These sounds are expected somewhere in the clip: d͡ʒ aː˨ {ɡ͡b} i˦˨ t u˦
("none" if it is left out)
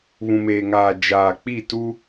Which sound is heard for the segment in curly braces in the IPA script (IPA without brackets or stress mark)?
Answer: k͡p